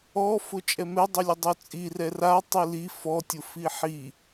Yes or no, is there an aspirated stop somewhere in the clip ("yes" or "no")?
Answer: no